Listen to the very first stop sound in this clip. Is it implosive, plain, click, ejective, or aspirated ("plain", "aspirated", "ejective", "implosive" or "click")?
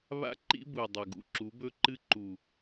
click